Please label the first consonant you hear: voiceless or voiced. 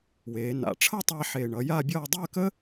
voiced